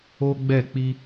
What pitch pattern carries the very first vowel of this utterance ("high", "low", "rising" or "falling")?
high